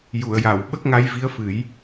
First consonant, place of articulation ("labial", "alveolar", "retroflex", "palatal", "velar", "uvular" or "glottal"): palatal